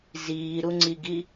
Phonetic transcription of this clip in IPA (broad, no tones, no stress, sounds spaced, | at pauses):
z iː ɾ u ŋ͡ǀ i ɡ i